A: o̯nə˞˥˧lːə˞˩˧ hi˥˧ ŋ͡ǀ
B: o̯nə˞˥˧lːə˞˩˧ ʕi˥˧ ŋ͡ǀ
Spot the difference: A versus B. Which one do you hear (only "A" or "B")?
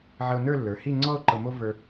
A